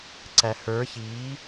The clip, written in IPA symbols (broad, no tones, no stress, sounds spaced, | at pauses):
ǀ æ h ə˞ ç iː